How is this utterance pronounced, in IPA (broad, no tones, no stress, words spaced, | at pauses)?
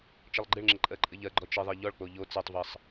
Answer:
t͡ʃɘlˠɡ͡ǃɪɭŋ͡ǁɪ ǃʼɜǃʼɘʎɜɡ͡ǃɔ t͡ʃɪðˤɜ ʎɔɭk͡po ʎo t͡sɛtˤvɜsˤ